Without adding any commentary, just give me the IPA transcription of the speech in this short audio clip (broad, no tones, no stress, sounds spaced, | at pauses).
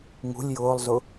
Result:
ŋ ṳ lʲ j ʊː lˠ z ʊ